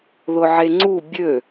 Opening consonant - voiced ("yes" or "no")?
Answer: yes